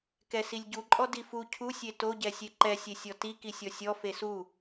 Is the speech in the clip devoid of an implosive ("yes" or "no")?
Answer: yes